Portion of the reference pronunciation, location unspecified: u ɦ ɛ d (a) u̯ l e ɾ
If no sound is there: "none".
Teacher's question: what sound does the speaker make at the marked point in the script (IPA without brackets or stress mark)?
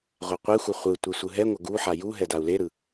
a